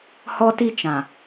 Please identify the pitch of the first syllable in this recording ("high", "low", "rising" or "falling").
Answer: high